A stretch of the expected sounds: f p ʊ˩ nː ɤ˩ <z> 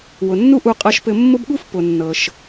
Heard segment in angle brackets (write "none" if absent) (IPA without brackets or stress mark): ʃ